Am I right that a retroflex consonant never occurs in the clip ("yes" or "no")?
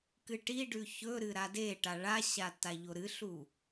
no